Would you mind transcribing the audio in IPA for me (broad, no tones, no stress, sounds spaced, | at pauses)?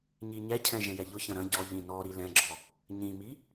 ɲ i ɲ ɛ cʰ ɛ̃ ʒ ɛ̃ j ɛ ʎ ʊ ç ɐ̃ ɾ ɐ̃ ɟ ɔ ʎ ĩ n ɔ ɾ i l ɛ̃ ɡ͡ǁ ɔ | ɲ ĩ m i